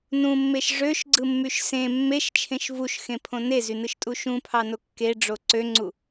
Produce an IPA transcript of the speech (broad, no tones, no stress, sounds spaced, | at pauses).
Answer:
n ũ mː e ʃ ʐ ø ʃ ɡ͡ǀ ɯ mː y ʃ s ẽ mː e ʃ t͡ʃʰ ẽ ʃ v u ʃ x ẽ pʰ õ n e z y n ɯ ʃ tʼ u ʃ ũ pʰ ɑ n o kː e ɖ͡ʐ o ǀ ø ŋ͡ǀ u